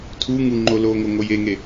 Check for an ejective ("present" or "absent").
absent